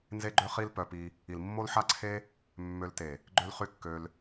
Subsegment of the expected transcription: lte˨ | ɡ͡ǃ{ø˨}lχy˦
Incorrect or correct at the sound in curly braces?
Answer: incorrect: ø˦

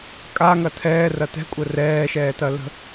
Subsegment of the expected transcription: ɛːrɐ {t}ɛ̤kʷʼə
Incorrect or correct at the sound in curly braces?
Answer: correct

